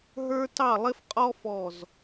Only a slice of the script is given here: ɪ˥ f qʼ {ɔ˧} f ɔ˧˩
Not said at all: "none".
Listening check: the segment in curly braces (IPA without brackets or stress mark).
ɔ˥